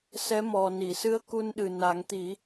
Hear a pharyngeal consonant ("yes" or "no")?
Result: no